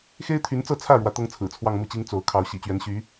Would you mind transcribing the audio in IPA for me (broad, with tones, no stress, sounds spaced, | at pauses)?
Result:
x e˥ ɪ̯ t̪ʰ y˧˥ n t͡s ɤ˥˧ t͡sʰ ä˥˩ ɻ w ä˧˥ t̪ ɤ˥ ŋ t͡sʰ ɹ̩˨˩ t͡sʰ w ɑ˥˧ ŋ m u˥˩ t͡ɕ i˥ ŋ t͡s o˧˥ ʊ̯ kʰ ɑ˧˥ ʊ̯ ɕ ḭ˨˩ t͡ɕ ɥ ɛ˧˥ n ɕ y˧˥